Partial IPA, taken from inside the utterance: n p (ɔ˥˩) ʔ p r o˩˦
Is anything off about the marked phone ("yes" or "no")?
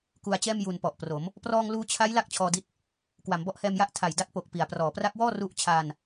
yes